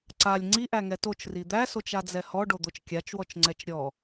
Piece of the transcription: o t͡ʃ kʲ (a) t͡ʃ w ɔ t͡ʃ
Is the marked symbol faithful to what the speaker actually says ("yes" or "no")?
yes